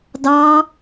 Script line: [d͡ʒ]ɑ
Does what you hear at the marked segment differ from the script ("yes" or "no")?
yes